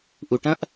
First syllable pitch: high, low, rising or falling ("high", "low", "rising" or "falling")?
low